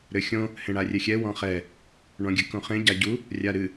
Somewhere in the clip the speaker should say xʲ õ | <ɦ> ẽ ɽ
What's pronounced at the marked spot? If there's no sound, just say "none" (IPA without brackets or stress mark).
h